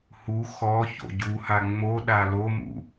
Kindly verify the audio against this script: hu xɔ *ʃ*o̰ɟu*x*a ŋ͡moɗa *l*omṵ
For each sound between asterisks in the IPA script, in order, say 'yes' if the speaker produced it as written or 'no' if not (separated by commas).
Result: no, no, yes